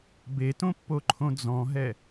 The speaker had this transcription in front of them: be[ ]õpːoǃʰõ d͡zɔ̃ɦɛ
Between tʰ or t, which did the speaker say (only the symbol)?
t